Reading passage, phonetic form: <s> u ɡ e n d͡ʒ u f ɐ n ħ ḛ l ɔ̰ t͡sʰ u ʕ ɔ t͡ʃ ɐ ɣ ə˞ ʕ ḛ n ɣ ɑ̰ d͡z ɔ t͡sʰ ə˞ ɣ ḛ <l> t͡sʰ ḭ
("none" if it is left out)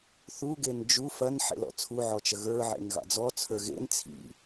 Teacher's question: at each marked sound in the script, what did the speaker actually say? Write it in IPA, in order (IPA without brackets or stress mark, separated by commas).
θ, n